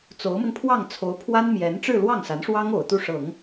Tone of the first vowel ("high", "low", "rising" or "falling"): rising